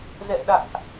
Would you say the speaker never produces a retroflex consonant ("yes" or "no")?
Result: yes